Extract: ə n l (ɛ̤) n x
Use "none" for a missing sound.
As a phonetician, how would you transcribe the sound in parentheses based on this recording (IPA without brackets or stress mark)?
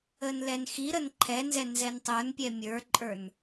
ɛ